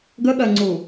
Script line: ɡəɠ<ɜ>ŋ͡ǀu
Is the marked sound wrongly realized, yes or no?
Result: no